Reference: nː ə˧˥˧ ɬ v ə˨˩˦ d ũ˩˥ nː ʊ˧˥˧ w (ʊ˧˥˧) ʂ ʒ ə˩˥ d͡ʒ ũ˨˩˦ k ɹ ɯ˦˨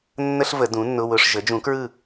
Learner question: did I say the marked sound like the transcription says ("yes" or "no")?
yes